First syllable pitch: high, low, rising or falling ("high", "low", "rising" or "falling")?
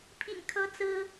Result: low